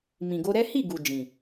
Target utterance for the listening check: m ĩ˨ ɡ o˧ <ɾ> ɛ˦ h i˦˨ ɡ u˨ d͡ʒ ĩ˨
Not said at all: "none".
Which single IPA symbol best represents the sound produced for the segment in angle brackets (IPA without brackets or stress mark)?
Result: ɾ